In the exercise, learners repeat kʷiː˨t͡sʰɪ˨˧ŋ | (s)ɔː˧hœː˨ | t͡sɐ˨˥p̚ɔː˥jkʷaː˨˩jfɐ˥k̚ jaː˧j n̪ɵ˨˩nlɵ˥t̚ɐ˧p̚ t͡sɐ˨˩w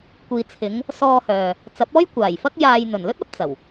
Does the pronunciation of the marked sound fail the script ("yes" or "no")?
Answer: no